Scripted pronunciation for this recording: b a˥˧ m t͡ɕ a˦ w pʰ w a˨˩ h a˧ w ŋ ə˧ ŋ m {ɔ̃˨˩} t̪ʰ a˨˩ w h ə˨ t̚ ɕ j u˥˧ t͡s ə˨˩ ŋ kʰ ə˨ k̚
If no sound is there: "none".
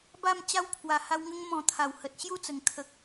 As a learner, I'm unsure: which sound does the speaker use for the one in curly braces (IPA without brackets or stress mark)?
ɔ̃˨˩